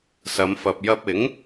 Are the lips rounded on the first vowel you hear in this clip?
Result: no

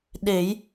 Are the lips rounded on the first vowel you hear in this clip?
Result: no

